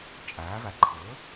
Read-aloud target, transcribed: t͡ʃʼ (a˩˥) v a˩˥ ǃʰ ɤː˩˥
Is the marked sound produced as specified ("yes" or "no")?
no